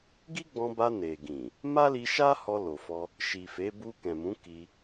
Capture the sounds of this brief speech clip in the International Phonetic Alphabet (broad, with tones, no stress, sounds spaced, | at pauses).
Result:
ɡ i˦ ɡ͡b ɔ̃˧ b a˧ n e˨ ɡ ĩ˨ | m a˦ l i˧ ʃ a˦ h ɔ˧ l o˨ f ɔ˧ | ʃ i˨ f e˨˦ b u˧ k ɛ̃˨ m ũ˨˦ k i˧